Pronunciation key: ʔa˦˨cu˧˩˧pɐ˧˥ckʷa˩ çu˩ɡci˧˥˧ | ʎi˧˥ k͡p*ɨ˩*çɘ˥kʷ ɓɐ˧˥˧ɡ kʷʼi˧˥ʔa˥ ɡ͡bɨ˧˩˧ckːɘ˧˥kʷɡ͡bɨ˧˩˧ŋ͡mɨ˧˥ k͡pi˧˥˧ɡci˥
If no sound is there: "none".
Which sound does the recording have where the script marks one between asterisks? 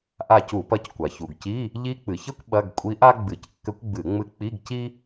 ɨ˩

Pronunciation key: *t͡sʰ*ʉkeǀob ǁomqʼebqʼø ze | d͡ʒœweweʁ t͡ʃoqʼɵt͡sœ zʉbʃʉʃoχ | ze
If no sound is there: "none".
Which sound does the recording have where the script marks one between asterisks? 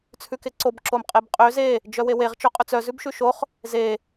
t͡sʰ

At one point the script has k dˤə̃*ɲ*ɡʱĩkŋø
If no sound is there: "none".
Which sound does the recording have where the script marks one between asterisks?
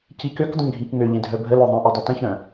ɲ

